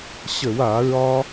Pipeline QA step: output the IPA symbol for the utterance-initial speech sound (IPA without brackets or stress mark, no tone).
ɕ